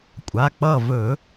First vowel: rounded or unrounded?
unrounded